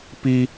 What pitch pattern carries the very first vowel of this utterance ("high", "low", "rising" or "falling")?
high